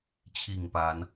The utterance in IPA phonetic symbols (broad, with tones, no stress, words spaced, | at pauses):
t͡ɕʰi˥˨ŋpa˨˦n